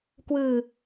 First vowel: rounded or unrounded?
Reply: unrounded